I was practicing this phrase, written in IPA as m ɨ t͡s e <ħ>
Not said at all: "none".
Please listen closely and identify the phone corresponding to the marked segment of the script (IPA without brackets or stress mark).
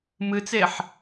ħ